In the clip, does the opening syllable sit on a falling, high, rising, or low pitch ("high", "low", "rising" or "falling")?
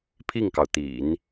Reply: falling